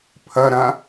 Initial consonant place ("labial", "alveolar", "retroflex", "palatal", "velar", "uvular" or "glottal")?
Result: labial